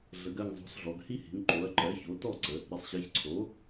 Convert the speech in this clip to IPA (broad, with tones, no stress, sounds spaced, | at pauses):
ɮ ə˩˧ ɡ ɜ˧˩ ŋ zˤ o̤˩˥ s ɮ ɔ˩˧ ɡ h i˦ h i̤˩˧ ŋ ǃ o˩˥ ɐ̯ ǃ ɜ˩˥ ç o˩˥ t ɔ˥˩ ǀ ə˩˧ | ɾ i˩˧ sˤ ɕ ɜ˩˥ ç ǀʰ o˩˥